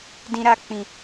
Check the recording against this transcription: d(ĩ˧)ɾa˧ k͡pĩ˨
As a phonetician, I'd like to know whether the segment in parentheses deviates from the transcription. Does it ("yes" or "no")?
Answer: no